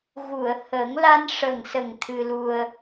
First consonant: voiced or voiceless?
voiced